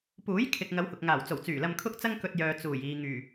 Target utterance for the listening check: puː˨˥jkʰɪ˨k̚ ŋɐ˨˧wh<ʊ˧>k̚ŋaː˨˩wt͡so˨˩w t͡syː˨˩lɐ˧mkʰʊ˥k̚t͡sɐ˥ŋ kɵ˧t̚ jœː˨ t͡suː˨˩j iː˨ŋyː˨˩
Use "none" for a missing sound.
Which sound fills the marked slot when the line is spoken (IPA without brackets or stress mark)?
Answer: ʊ˨